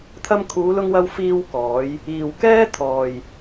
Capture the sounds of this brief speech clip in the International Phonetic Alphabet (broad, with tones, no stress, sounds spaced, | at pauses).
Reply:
t̪ʰ ɐ˧ m kʰ uː˨˧ l ʊ˧ ŋ w ɐ˧ w f iː˧ w k ɔː˨˧ j | iː˨ w k ɛː˥ t̪ʰ ɔː˨ j